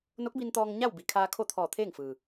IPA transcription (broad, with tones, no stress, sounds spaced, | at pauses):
n o˧˥ k̚ b i˧ n t̪ ɔː˧ ŋ ɲ a˥˨ w b i˩˧ kʰ aː˧ kʰ o˥˨ t̪ʰ ɔː˧˩ t̪ʰ eː˥˨ ŋ f ɯː˩